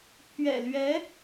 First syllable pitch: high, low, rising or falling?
low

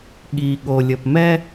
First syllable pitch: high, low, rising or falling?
low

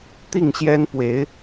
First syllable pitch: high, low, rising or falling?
falling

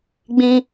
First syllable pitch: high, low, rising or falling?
high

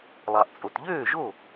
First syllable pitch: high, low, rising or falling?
low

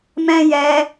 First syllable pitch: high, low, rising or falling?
high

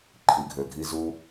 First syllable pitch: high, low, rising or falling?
low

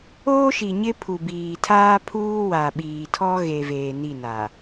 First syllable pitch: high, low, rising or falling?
high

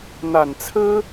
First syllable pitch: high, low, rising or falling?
low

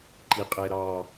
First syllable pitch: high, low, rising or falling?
low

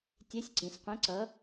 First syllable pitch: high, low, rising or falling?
rising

